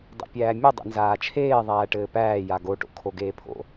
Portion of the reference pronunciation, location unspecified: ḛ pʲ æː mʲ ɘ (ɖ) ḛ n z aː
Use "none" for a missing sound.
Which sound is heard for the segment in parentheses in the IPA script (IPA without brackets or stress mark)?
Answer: dˤ